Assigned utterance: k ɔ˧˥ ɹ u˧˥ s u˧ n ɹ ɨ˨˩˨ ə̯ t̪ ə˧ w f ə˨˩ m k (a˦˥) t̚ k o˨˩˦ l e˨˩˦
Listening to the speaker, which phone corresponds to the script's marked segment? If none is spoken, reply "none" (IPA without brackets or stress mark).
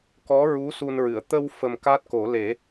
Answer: a˦˥